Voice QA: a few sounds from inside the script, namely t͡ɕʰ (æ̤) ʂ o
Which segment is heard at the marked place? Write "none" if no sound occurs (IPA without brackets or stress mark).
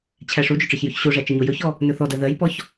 æ